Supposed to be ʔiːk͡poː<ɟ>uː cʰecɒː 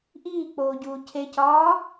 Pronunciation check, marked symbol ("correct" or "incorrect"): correct